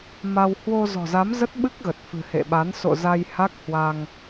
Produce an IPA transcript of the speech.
m a˧ w h w o˧ z ɔ̤˨˩ z a˨˦ m z ə˦˥ t̚ ɓ ɨ˦˥ k̚ ɣ ə˨˩ t̚ f ɨ̤˨˩ h ḛ˧˨ ɓ a˨˦ n s o̰˧˨ z a˧ j h a˦˥ k̚ h w a˧ ŋ

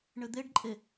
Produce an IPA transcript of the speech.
ɳ ɘ d̪ e ɖ ǃʼ e

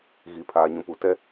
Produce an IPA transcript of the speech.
ɣ i˨ pʰ aː˨ ɲ ũ˨ p u˨ t ɛ˦

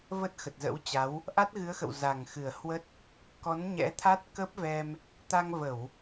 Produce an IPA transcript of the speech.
v ə˦˥ t̚ x ə˨˩ t̚ z ə̰˧˥ w t͡ɕ a˨˦ w | ʔ a˦˥ t̚ ɣ ɨ˨˦ ə̯ x ə̰˧˨ w z a˨˩ ŋ x ɨ˨˩ ə̯ h w ə˦˥ t̚ | k ɔ˨˦ n ɲ ɛ̰˧˥ t̪ʰ a˦˥ t̚ k ə˦˥ p̚ v ɛ˧ m | t̪ a˧ ŋ v ə˧˩˨ w

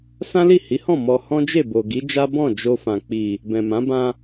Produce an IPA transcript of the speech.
s ã˦ l i˦˨ h i˨˦ h ɔ̃˦˨ m ɔ˧ h ɔ̃˦ d͡ʒ e˦˨ b o˨ ɡ i˨˦ d͡ʒ a˦ b ɔ̃˦˨ d͡ʒ o˧ f ã˨ k͡p i˨ | b ɛ̃˨ m ã˨˦ b ã˧

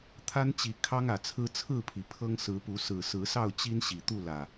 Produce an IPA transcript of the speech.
t̪ʰ a˦ n t͡ɕ i˨˩ kʰ ɑ˦ ŋ ä˨˩ t͡sʰ ɹ̩˦ t͡sʰ ɹ̩˥˨ pʰ i˩ pʰ ɤ˦ ŋ s ɹ̩˨˦ p u˨˦ s ɹ̩˨˩ s ɹ̩˨˦ s ɑ˥˨ ʊ̯ t͡ɕ i˦ n ɕ i˨˩ t̪ u˥˨ l ä˨˩

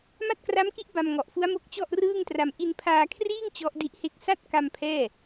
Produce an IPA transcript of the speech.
m a˥˩ t̚ k r a˦˥ m k i˦˥ ʔ b a˧ m ŋ ɔ˨˩ ʔ f u˦˥ a̯ m o˦˥ k̚ t͡ɕ ɔ˥˩ ʔ r ɯː˥˩ ŋ t r a˧ m ʔ i˧ n pʰ aː˧ kʰ r iː˥˩ ŋ t͡ɕ ɔ˦˥ ʔ d i˦˥ ʔ h e˥˩ k̚ s a˥˩ t̚ k a˧ m pʰ ɛː˥˩

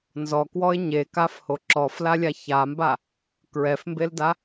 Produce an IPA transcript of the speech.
n z ɔ k w ɔ ɪ̯ ɲ e k a f h o ǁ ɔ f l a lʲ a ç a m b a | k ɹ ɛ f m b e l d a

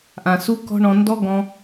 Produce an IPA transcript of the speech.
ʔ ã˨ s u˦ k ɔ̤˦ ɳ ɔ̃˧ n d ɔ˦ ɡ ɔ̃˧

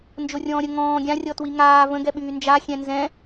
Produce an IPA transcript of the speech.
n d͡ʒ o rʲ ɔ̃ː ɾʲ ə ŋ ɔ̃ː ɡʲ ã rʲ ɔ t w i ŋ aː v ə̃ ɡ ɛ ɓ yː n d͡ʒ a xʲ ɛ̃ n z ɛ̃

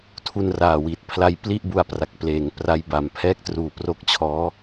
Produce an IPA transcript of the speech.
tʰ u˧ n r aː˨˩ w i˨˩ t̚ pʰ l a˧ j p l i˥˩ ʔ b u˧ a̯ p r a˨˩ k̚ p l eː˨˩ ŋ p r a˦˥ j b a˨˩ m pʰ ɛː˥˩ k̚ t r uː˨˩ p r o˦˥ k̚ t͡ɕʰ ɔː˦˥

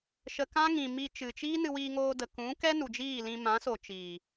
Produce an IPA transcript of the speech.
ʃ ə˧ k ã˦ ŋ ĩ˨ m i˧ t͡ʃ ɨ˨ t͡ʃ iː˦ n ɨ˧ w iː˧ ŋ oː˧ d ə˨ k ũ˨˦ k ɛ˦ n u˨ d͡ʒ iː˦˨ l ĩ˧ m ã˨˦ s o˨ t͡ʃ iː˨

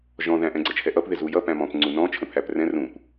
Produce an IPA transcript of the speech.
ʒ ɔ̃ ð æ̃ ʔ ɛ̃ ɡ͡ǀ ə t͡ʃʰ ɛ ʔ ʌ p ð ɪ z u j ʌ p æ̃ m ɔ̃ p ŋ͡ǀ u n ɔ̃ t͡ʃʰ ə̃ pʰ æ p r ɛ̃ r ũ p

